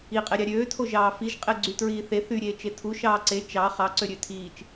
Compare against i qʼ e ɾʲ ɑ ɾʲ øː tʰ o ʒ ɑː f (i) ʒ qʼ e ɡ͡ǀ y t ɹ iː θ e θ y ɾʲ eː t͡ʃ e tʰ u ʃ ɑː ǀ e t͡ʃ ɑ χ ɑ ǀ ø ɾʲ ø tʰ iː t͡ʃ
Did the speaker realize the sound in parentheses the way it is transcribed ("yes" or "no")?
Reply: yes